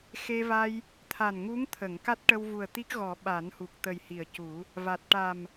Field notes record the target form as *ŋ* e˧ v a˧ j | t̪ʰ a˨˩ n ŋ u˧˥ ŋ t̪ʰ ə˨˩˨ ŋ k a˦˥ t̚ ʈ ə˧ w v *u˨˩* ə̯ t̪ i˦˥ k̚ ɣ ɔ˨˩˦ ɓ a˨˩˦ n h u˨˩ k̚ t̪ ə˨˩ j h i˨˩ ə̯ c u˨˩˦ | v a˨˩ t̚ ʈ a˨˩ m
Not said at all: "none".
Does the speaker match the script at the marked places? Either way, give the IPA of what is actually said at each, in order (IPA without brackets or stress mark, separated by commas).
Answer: x, u˨˩